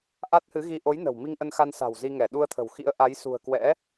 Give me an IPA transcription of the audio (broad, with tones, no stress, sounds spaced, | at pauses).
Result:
ʔ a˦˥ t̚ h ɨ˨˦ ɣ i˧ ʔ o˨˦ j n ə̤˨˩ w m i˧ ŋ ʔ ə˧ n x a˧ n s a̤˨˩ w z i˧ ŋ ɛ˧˩ ɗ u˧ ə̯ t̪ʰ ə̤˨˩ w x ḭ˧˥ ə̯ ʔ a˨˦ j s ṳ˨˩ ə̯ k w ɛ̰˧˥